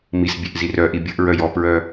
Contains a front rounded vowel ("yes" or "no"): yes